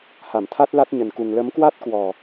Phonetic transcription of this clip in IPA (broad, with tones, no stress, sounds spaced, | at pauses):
h a˧˩ m t̪ʰ a˦˥ t̚ l a˦˥ t̚ ɲ ə˨˩ n k u˨˩ ŋ l ə˨˦ m k w a˦˥ t̚ k w ɔ˨˩